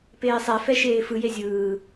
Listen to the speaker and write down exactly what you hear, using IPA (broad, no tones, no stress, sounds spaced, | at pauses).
p eː sˤ ɛ f ɛ ʃ eː f ɯ j e zʲ ɯː